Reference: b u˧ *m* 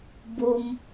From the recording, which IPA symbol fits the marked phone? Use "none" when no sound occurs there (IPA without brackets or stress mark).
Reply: m